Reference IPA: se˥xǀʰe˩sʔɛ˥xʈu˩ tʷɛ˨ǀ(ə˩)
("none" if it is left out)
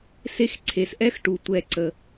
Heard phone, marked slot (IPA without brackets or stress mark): ə˩